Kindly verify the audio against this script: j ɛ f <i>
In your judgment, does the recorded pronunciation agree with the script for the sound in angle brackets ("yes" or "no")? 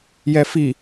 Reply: yes